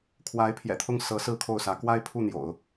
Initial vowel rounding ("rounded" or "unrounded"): unrounded